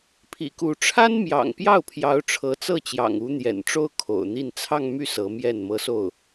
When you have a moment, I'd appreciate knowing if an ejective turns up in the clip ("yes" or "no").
no